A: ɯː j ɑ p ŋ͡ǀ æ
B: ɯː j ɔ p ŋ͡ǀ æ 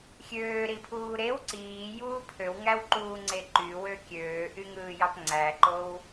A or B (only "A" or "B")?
A